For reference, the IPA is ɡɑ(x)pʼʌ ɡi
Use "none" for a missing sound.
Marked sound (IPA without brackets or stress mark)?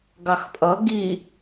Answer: x